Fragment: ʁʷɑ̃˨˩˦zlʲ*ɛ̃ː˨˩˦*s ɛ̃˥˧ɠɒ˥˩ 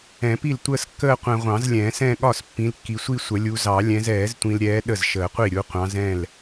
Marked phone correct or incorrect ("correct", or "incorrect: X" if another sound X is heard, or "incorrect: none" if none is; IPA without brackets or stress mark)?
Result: correct